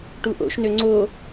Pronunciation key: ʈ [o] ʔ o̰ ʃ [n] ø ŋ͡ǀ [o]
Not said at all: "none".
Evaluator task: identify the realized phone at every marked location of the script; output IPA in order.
u, n, o

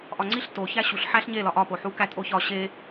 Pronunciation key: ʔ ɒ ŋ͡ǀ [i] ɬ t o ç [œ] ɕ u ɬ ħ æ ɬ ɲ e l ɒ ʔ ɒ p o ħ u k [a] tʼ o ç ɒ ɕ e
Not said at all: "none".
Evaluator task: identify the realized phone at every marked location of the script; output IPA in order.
i, æ, æ

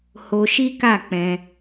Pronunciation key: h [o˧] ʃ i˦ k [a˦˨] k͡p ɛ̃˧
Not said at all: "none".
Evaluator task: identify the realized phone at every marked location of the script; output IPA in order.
o˧, a˦˨

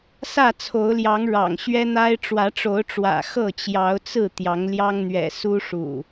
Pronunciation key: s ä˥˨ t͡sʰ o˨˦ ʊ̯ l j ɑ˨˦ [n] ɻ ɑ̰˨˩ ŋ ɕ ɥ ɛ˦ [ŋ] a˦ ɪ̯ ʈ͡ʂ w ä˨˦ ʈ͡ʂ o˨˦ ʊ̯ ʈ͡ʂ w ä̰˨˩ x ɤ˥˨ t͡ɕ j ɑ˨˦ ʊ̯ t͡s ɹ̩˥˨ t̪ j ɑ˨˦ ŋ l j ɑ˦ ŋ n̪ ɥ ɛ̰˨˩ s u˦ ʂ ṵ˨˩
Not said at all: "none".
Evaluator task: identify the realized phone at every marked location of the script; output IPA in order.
ŋ, n̪

